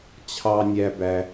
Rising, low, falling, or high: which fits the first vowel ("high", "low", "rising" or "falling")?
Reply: high